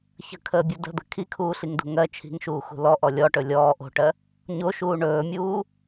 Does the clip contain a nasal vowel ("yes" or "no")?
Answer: no